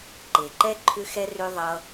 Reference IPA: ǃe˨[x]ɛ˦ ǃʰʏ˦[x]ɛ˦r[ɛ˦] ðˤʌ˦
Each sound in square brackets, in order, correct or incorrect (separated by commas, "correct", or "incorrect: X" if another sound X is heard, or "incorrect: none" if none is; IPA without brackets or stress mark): incorrect: ǃ, correct, incorrect: ø˦